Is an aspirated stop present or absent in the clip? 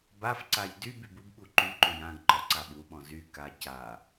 absent